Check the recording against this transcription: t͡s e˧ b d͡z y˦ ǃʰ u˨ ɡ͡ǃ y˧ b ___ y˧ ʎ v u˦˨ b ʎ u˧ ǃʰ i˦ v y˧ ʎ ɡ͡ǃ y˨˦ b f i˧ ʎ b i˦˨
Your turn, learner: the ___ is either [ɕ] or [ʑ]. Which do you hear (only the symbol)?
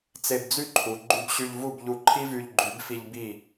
ɕ